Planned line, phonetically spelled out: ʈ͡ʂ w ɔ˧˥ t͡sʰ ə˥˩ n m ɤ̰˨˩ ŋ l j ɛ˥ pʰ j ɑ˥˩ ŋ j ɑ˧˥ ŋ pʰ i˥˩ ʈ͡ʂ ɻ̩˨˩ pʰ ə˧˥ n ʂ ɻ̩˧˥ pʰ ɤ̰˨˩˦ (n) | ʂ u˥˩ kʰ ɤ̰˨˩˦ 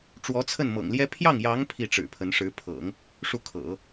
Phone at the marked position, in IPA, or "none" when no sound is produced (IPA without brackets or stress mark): ŋ